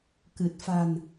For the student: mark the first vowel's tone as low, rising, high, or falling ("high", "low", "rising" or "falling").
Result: low